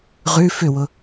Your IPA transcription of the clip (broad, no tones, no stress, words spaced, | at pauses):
ʁʉ fʏwʊ